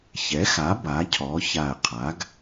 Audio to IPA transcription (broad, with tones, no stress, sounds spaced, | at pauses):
ç ɛ˩˥ x a˩˥ b a˩˥ cʰ ɔ˩˥ ç a˧˩ ə̯ qʰ a˩˥ ɡ